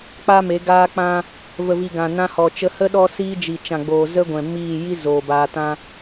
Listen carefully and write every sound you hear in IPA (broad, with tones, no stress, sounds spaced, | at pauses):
k͡p a˦ m e˨˦ ɡ aː˦ k͡p ã˦ | v ə˨ v i˨ ɡ ã˨ n ã˧ h ɔ˨ t͡ʃ ə˧ h ə˦ ɗ ɔ˦ s iː˦ d͡ʒ i˨ t͡ʃ ã˨ ɡ͡b oː˨ z ə˦ ɡʷ ɛ̃˨ m iː˦˨ j i˦ z oː˨ b aː˧ t ã˦